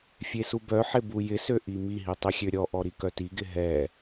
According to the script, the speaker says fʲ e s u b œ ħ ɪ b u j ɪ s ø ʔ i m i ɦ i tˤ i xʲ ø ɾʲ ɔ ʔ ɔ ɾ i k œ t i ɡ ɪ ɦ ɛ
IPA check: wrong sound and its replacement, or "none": none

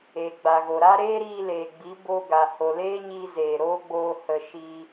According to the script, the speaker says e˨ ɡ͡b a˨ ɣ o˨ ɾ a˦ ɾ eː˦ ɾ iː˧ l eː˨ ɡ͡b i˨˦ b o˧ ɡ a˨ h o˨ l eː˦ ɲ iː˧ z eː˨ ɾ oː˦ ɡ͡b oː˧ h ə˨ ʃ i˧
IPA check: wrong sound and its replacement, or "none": none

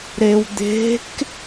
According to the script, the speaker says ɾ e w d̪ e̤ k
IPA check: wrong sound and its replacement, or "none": none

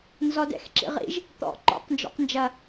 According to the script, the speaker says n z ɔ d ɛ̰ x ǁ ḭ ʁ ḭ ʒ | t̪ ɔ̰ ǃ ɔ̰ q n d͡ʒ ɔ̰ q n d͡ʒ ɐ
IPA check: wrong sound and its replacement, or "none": none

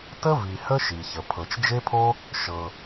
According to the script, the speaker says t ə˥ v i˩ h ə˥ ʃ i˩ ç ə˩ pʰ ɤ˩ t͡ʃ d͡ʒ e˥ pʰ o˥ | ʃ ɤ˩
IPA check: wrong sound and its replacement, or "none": none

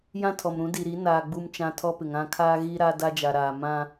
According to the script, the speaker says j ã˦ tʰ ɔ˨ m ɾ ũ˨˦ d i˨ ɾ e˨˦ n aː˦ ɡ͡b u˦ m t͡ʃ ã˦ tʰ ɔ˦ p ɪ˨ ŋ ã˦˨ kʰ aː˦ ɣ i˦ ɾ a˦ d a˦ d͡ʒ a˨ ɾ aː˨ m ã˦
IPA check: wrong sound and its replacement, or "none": e˨˦ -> i˨˦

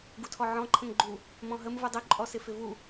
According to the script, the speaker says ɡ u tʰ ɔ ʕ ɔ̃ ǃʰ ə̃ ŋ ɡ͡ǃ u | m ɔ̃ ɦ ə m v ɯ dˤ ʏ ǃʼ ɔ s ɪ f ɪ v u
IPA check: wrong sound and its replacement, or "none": none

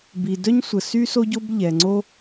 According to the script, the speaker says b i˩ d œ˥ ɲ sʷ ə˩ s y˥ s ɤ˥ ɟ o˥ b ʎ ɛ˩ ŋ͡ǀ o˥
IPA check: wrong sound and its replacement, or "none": ɤ˥ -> o˥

